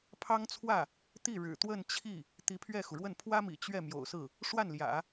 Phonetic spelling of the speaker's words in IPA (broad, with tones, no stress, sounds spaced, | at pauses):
pʰ ɑ˥ ŋ t͡sʰ w ä˥˩ | t̪ i˥˩ ɻ ɻ̩˨˩ t̪ w ə˥˧ n t͡ɕʰ i˥˩ | t̪ i˧˥ pʰ ɥ ɛ˥˩ x u˩ ɻ w ə˥˩ n pʰ w ä˥ m ḭ˨˩ t͡ɕ ɥ ɛ˥˩ m j o̰˨˩ ʊ̯ s ɹ̩˥˩ | ʂ w a˥˩ n l j ä̰˨˩˦